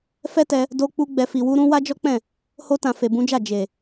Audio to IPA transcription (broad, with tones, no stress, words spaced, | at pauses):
fɛ˦tɛ˧ | do˧k͡pu˧ ɡ͡bɛ˨fi˨wu˧ɾũ˧ wa˦d͡ʒɔ˦k͡pɛ̃˦˨ | ho˧tã˨ fe˨bũ˨˦d͡ʒa˦˨ d͡ʒe˨